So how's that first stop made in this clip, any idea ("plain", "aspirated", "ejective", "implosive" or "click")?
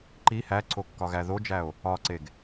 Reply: click